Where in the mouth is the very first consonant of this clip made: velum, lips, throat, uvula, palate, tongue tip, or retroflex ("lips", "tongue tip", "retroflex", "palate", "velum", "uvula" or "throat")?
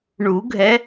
retroflex